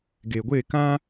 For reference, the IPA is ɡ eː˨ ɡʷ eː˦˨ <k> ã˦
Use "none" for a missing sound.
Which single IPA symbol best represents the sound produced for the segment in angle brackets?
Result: k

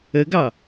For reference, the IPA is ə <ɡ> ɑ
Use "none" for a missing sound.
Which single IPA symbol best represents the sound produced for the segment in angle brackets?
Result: ɡ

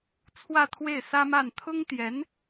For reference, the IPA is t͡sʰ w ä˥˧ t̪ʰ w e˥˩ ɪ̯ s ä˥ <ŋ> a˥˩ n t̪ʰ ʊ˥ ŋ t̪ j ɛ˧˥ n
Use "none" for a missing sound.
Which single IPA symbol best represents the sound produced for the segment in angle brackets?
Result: m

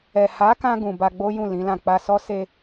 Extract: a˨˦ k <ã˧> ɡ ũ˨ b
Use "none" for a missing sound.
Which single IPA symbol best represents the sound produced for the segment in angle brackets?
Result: ã˧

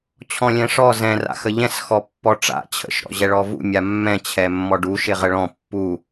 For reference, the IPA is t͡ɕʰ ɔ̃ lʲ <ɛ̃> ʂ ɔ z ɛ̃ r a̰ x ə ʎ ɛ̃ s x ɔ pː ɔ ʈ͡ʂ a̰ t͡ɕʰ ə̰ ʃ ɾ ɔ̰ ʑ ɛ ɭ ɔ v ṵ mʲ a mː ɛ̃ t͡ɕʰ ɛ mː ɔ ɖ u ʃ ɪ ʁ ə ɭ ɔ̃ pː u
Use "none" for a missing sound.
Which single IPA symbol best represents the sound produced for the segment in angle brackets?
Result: ɛ̃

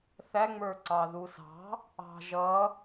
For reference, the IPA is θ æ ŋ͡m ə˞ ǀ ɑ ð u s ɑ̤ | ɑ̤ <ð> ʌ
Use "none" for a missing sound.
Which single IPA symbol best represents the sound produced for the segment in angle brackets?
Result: ʒ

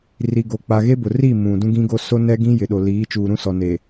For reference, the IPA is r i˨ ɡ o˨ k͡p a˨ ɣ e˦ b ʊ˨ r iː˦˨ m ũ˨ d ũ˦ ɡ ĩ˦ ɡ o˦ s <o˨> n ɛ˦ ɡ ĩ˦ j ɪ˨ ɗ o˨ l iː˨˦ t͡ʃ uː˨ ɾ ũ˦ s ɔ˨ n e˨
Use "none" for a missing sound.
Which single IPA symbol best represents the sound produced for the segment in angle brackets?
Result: o˦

